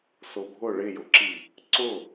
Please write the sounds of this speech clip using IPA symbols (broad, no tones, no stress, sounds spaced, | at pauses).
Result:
s ʊ bʱ ʊ ɭ ɪ j ʊ ǁ i | ǀ ʊ